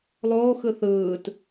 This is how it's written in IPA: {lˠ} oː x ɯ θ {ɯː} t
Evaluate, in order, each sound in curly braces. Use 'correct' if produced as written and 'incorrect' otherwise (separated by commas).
correct, correct